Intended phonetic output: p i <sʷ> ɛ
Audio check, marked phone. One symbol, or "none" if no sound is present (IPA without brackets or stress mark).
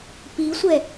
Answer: sʷ